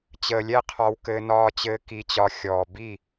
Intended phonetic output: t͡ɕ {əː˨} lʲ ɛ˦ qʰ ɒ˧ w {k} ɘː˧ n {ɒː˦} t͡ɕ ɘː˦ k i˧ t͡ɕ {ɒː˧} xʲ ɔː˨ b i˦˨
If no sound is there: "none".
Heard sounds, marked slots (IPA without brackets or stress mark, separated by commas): əː˨, k, ɒː˦, ɒ˧